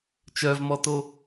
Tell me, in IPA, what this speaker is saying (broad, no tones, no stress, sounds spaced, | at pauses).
t͡ʃ œ v m ɔ t o